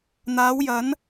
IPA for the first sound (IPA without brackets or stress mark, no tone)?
n̪